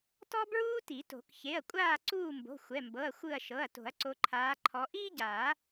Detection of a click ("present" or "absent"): present